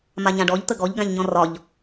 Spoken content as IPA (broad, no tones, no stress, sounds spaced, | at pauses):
m a ɲ ã ɖ ɔ ʎ t̪ ə ɡ ɔ ʎ ɡ ã ʎ ɲ ɔ̃ r ɒ ʎ